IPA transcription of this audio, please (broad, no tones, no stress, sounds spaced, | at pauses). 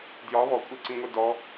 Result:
d j ɒ β ɔ kʷʼ e ǀ ĩ ŋʷ e d ɔ